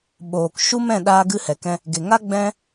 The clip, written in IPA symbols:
ɓoː˨kʃu˦mɛ̃˦˨ ɗaː˦ɡɨ˦hɛ˨kɛ̃˦ | ɡe˨ŋa˦ɡ͡bɛ̃˦

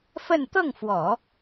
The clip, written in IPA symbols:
fə˥˧n t̪ɤ˥˩ŋfwɔ˨˩˦

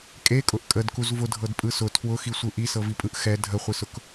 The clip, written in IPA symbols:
kʼekʼʊʔ kʼədkuz vʊdʱɤdpʼɯ sʊ tʰwʊxisʷɯ ʔisɤvipʼɯʔ xɛ dʱəχʷisʊk

